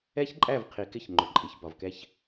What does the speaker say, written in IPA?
ɛ˦çǃʼæ˦˨vqʰi˨kɪ˦˨ç ŋ͡ǃʏ˨ǃʼi˨çbɒ˨vkɛ˦ç

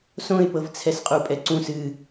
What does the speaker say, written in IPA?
sõɪ̯pɤv t͡sʰɛsqʼupʼɛǀũs ɨ

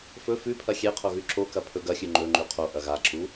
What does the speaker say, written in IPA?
fɵ fʉpʰɐ xʲeqʰo ɣʉǁokɐ pʰɵɡɐxʲʉ ŋ͡ǃɵ ŋ͡ǃʉqʰoʔɐ ɣaǁu

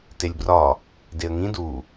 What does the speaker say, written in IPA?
telʲbrɒ | deə̯ŋĩ du

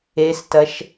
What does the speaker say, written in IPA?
estɐʃ

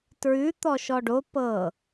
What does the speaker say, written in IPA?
tɹʉ t̪ɔʃɔɖo pɤ

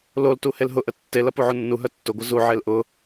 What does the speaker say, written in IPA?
loltu helɦʊʔə tːelɐ puʕunːuɦœ tːʊɡʷɐ zuʕel ʔʊ

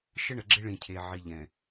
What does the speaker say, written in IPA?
ʃə˦ɳə˨ɡ͡ǁɪ˦ ɭĩ˨cʰe˨ ʕi˨ʎɛ̃˨

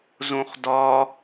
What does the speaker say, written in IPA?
zõχdɒ

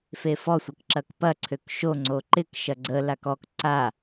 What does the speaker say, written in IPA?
fefɔsʷək ǁɐkpɐǀʰøk ʃoŋ͡ǀo ǃɪk ʃɐɡ͡ǀə lakɔk ǀa

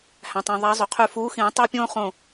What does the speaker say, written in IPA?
hæ̃˩tˤõ˩ ðˤæ˨˦ zˤy˩qʰy˧˩ fuː˨˦xĩː˨˩˦ tˤɑ˦pʲõː˦ χõ˥˨

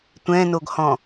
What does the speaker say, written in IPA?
tʷɛ̃noɡhɔ̃

